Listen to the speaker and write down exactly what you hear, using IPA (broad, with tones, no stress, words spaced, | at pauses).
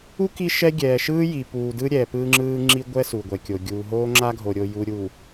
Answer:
u˦ ki˦ʃɛ˦ ɡʲɛː˨ʃɯː˦ji˨ puː˨dɯ˦ ɾʲɛ˨pɯː˦ŋ͡ǁɯː˦ ŋ͡ǁi˦ɡʷɛ˦ su˨ɡʷɛ˨kʲo˨ ɡʲuː˨ɦoː˦ŋ͡ǁa˦ɡʱo˨ ɾʲo˨ju˨ ɾʲu˨